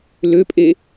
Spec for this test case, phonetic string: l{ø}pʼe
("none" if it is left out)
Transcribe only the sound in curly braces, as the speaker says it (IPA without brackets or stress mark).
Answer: ø